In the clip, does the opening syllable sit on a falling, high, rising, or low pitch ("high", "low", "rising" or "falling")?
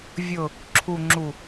low